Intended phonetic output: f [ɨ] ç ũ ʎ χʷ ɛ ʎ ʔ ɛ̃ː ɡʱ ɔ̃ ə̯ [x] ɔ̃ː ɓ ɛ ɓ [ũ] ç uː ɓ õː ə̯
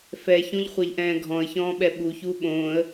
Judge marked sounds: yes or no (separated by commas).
no, no, no